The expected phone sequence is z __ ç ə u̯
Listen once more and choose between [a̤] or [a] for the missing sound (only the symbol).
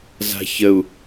a̤